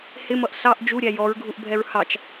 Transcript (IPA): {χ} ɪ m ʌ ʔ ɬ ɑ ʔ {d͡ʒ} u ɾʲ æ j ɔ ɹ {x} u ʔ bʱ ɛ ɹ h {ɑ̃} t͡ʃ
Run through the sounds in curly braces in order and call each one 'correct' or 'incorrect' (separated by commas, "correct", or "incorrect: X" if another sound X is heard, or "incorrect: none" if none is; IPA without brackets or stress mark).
incorrect: h, correct, incorrect: ɡʱ, incorrect: ɑ